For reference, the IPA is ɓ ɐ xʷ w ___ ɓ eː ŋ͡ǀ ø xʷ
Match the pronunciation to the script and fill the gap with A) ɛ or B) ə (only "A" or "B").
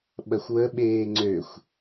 B